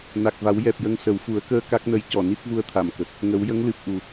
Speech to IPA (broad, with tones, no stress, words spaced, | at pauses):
na˨˩k̚va˨˩˦w jɛ˨˩p̚jə˧ŋ sə˨˩˦wfu˨˩˦ə̯kəː˧ ka˦˥k̚nə˧˥j cɔ˨˩˨ ni˦˥t̚vu˧ə̯t̪ʰa˨˩˨m kə˨˩k̚ | ŋə˨˩˦wjə˧˥ŋlɨ˨˩p̚ ʔu˨˩